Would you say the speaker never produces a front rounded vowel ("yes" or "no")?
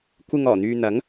no